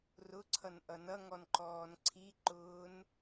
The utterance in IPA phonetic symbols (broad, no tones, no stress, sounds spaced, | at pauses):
r ʊ ǀʰ ʌ n ʔ ʌ n ʌ ŋ ɔ n ǃ ɔː n ǀʰ i ǃ ʊː n